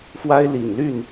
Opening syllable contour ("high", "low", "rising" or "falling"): high